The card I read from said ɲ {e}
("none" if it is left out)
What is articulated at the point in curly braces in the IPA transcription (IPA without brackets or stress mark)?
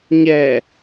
ɛ